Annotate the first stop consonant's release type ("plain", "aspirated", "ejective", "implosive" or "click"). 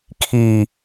aspirated